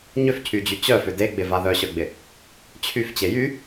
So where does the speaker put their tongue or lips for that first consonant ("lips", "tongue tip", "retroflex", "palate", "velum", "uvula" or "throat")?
palate